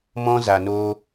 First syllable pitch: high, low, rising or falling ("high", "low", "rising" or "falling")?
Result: high